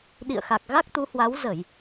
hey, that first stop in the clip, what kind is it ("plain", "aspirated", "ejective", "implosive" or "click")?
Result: implosive